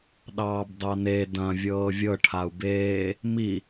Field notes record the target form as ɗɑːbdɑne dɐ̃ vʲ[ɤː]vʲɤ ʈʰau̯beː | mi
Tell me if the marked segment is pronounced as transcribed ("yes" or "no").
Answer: yes